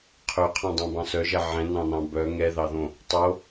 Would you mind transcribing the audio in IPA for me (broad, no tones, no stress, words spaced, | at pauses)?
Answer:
qʰɵqʰɑ̃dˤœ̃bɑ̃ sœʒɛ ʕɛ̃nɑ̃nɑ̃ bœ ŋɛðɑðõ | tˤo